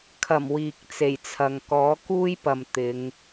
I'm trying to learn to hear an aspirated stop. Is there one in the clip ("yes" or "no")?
yes